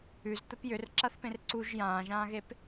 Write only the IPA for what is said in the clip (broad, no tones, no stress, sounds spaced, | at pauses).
ʉ z t̪ ə p j ʏ r ǁ a θ p ẽ r ǀ u ʒ j ãː ʒ ãː ɣ e p